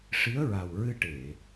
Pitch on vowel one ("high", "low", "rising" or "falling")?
rising